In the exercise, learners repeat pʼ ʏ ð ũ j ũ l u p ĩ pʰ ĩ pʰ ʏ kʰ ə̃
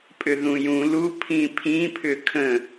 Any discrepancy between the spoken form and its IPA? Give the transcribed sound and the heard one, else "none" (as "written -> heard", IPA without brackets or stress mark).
p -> pʰ